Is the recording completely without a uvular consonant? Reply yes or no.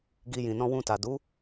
yes